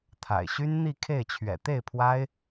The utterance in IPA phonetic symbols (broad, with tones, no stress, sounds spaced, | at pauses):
t̪ʰ a̰˨˩ ɪ̯ ɕ y˥ n n̪ i˥˧ kʰ e˥˩ ɪ̯ t͡ɕʰ ɥ ɛ̰˨˩ t̪ e˥˩ ɪ̯ pʰ w a˥ ɪ̯